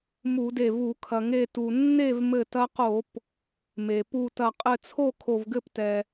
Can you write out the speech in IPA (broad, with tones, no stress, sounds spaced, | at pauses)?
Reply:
m u˧˩˧ d e˧˩ v u˧˩˧ kʰ ɐ˩ ŋ e˧˩ t u˩ nː e˥˩ v m ɘ˧˩ t ɐ˧ q o˧˩˧ p | m e˩ p u˧˩ t ɐ˧˩ qʼ ɘ˧˩ t͡sʰ o˥˩ kʰ o˧˩ v ɡ ɘ˥˩ p t ɛ˩